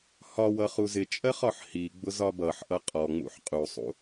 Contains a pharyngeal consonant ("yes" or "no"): yes